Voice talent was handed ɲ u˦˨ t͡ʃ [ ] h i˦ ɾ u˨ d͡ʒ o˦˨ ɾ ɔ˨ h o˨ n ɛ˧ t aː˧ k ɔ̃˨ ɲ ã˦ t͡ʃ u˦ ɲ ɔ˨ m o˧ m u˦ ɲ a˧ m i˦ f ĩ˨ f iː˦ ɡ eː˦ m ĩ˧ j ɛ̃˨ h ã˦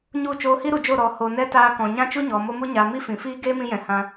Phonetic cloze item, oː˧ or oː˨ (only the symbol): oː˧